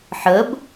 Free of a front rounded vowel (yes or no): yes